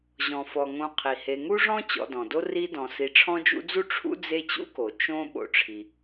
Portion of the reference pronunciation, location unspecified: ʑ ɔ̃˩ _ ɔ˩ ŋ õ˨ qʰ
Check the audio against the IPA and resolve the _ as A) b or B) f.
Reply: B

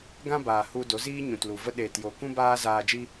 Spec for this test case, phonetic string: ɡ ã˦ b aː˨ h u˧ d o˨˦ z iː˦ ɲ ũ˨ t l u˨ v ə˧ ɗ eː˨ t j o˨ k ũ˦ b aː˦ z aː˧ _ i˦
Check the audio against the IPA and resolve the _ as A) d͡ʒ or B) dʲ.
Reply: A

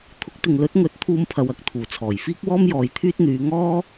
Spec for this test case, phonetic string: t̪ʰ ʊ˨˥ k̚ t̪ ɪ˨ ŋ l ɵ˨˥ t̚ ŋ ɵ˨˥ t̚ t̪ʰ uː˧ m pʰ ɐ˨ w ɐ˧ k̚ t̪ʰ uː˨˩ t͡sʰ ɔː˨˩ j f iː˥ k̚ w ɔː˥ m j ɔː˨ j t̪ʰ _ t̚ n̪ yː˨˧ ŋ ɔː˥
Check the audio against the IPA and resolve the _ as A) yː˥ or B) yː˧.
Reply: A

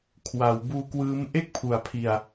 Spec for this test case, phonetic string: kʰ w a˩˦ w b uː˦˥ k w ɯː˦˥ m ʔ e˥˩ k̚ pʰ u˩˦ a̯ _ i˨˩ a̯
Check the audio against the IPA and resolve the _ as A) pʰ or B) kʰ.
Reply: A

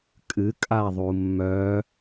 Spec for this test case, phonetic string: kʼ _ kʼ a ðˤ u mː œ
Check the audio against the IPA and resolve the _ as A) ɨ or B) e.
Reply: A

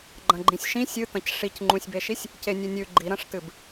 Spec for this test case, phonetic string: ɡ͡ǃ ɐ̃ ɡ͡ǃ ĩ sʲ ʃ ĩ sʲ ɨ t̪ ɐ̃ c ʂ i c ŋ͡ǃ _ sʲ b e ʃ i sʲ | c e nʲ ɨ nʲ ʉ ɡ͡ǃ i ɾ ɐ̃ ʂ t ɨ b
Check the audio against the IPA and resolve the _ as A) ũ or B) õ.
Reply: A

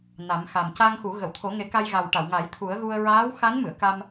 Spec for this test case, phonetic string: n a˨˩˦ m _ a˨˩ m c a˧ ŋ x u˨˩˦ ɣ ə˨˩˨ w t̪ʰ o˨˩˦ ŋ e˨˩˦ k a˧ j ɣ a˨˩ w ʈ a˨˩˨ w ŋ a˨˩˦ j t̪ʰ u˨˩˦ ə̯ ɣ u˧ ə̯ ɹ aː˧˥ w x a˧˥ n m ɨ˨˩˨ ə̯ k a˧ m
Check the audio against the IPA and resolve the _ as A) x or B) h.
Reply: A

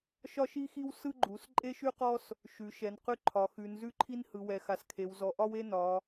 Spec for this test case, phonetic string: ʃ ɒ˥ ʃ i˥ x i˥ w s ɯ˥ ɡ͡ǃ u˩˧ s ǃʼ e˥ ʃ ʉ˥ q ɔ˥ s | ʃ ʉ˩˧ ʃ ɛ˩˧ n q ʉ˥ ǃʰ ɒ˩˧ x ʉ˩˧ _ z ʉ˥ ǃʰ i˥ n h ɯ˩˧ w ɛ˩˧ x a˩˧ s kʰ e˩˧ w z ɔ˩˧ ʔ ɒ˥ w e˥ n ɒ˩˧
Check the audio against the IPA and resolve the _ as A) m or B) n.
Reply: B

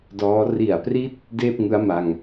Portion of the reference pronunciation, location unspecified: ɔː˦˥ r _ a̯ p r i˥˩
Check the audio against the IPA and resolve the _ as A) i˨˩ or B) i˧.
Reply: A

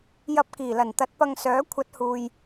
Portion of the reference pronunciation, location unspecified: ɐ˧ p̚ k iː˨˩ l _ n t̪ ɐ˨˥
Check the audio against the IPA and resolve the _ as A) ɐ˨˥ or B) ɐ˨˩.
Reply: B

